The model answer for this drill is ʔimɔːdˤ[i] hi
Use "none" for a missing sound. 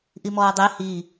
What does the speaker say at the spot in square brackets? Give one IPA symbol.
e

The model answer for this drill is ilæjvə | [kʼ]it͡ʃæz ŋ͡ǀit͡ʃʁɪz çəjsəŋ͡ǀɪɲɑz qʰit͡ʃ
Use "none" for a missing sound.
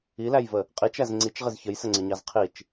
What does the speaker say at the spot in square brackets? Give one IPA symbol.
qʼ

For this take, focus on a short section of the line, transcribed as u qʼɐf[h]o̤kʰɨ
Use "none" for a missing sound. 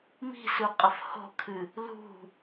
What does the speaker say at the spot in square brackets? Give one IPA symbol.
h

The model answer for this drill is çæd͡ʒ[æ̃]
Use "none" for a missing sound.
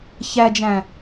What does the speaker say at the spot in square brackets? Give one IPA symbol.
æ̃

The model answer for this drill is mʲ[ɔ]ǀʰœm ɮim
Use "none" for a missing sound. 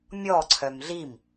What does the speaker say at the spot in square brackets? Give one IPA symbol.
ɔ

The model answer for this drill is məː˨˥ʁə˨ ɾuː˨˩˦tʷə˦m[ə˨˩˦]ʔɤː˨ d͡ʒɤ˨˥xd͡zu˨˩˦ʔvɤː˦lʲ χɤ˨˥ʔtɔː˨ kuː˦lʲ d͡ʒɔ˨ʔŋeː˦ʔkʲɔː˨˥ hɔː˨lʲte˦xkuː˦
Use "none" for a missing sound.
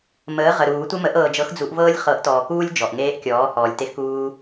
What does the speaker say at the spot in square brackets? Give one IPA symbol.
ə˨˩˦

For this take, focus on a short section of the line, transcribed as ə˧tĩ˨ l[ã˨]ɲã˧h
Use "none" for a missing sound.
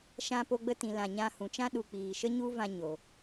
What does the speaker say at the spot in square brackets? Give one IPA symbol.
ã˨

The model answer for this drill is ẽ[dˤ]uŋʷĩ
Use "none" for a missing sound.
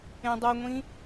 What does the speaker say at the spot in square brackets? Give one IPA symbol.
dˤ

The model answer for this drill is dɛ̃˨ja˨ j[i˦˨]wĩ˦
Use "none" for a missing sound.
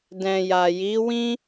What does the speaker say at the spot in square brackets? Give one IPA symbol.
i˨˦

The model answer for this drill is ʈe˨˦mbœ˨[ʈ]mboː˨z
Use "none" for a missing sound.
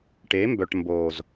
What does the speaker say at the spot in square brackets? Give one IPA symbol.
ʈ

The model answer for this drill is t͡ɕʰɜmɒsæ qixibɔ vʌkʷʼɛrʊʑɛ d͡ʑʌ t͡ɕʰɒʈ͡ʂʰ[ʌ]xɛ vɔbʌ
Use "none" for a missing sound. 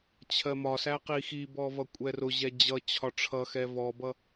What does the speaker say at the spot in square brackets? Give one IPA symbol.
ʌ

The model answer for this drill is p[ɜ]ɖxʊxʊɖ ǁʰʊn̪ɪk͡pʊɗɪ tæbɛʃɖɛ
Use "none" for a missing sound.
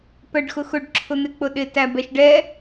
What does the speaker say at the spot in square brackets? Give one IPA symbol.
ɜ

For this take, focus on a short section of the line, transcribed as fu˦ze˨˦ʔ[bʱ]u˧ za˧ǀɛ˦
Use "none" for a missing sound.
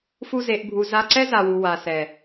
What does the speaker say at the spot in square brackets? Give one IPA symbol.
bʱ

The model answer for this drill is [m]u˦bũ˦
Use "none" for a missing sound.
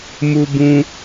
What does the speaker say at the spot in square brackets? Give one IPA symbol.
m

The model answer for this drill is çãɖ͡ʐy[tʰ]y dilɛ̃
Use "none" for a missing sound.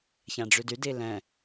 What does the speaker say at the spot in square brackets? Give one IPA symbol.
d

